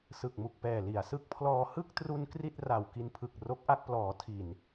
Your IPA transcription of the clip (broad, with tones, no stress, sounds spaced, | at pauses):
s ɯ˨˩ k̚ m u˨˩ k̚ p ɛː˨˩ l i˩˦ a̯ s ɯ˦˥ k̚ pʰ l ɔː˧ h ɯ˥˩ k̚ t r u˧ n k r i˥˩ t̚ r a˨˩ w k i˧ n pʰ ɯ˨˩ k̚ r o˦˥ k̚ ʔ a˥˩ k̚ p l ɔː˩˦ tʰ i˨˩ n